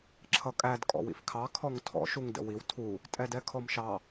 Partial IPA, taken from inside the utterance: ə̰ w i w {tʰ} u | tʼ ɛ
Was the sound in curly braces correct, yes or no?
yes